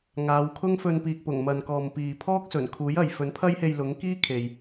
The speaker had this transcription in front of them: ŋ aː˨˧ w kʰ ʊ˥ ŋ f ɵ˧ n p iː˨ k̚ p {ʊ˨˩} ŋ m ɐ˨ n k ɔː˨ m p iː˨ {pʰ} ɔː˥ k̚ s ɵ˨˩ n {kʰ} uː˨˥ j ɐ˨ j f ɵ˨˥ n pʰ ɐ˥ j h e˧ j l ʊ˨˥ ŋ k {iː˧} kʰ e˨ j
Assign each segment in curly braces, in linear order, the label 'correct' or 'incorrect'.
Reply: correct, correct, correct, incorrect: iː˥

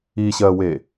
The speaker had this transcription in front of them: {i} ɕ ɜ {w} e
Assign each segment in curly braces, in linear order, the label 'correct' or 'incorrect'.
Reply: correct, correct

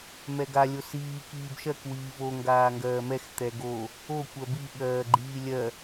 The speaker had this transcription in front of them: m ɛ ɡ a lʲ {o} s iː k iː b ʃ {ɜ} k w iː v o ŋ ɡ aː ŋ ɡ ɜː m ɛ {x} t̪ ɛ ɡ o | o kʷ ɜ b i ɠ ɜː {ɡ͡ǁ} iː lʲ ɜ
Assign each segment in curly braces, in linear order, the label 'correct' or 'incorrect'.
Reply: correct, correct, correct, incorrect: ɡ͡ǃ

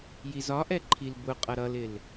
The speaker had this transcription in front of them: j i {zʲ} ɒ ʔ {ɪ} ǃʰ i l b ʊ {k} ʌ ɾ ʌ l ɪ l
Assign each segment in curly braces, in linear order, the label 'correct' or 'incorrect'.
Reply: incorrect: z, incorrect: ɛ, incorrect: qʼ

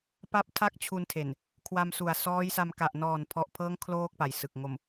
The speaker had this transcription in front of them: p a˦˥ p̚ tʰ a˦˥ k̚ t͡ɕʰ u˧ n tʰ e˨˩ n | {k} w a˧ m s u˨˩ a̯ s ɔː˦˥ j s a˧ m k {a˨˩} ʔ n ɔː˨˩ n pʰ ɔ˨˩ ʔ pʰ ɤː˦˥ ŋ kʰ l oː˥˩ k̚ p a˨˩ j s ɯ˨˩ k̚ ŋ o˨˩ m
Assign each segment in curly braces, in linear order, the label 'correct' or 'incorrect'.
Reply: incorrect: kʰ, correct

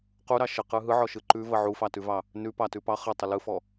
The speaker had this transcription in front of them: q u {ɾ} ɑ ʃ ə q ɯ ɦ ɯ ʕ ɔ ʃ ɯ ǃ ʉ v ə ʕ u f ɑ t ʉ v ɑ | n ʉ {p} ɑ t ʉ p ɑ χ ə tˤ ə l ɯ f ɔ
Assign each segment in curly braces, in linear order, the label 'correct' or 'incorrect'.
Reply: correct, correct

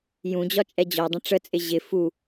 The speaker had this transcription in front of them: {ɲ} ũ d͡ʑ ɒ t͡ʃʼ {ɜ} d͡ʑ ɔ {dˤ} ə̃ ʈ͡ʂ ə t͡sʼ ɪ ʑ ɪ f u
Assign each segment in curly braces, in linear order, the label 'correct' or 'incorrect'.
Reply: incorrect: j, incorrect: ɛ, correct

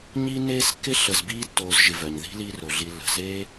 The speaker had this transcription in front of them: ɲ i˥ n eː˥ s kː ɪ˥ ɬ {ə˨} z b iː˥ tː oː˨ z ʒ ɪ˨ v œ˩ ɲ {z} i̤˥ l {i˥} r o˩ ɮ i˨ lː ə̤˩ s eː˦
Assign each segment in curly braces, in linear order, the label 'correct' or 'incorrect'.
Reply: correct, incorrect: ð, incorrect: i˦

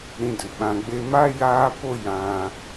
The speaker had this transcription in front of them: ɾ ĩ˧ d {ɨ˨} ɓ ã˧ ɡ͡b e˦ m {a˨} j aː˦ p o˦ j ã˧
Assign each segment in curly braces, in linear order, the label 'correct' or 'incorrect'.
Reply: correct, incorrect: a˦

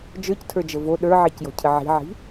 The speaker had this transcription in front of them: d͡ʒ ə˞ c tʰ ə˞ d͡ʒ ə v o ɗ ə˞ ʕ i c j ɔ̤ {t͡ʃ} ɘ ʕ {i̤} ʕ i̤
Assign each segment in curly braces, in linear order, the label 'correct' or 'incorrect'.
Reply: incorrect: cʰ, correct

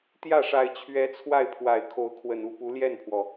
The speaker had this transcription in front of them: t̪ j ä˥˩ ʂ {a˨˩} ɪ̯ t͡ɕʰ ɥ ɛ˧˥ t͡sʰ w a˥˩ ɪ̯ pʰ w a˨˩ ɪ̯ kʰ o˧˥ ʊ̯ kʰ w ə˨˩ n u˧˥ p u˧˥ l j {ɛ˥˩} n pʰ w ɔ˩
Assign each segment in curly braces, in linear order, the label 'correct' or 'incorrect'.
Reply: correct, correct

